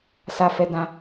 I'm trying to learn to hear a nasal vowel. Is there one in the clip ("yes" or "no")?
yes